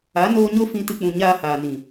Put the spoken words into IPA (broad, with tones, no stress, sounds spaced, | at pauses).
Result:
a˨˦ n oː˧ ɲ o˦ f ĩ˧ t ɨ˧ k͡p ũ˨ ɲ aː˧ h aː˨ n ĩ˨